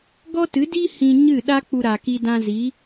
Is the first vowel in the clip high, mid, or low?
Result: mid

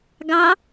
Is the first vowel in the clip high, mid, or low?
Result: low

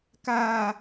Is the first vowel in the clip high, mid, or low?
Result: low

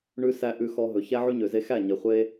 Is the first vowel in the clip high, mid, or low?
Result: high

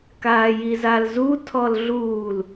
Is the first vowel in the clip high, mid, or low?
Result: low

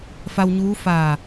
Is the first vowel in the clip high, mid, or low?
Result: low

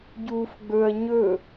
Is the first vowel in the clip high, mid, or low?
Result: high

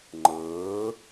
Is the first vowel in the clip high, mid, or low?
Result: mid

